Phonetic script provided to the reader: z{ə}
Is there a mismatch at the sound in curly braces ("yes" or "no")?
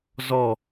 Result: yes